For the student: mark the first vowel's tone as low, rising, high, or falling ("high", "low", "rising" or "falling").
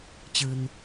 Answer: low